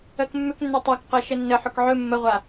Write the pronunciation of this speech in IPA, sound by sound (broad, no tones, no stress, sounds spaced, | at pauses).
ɜ k mː ʏ k nː ɵ tˤ a k q ɜ ʃ ə nː ə ħ ʏ k ʕ ɵ mː ə ʁʷ a